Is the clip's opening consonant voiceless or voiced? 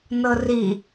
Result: voiced